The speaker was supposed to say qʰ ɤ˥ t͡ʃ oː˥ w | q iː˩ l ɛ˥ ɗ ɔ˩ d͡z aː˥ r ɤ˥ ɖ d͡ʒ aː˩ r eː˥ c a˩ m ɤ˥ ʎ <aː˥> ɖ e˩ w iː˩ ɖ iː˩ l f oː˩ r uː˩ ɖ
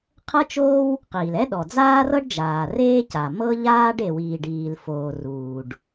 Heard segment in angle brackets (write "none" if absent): aː˥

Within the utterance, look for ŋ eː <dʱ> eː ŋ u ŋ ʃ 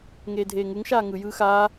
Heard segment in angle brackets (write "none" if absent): dʱ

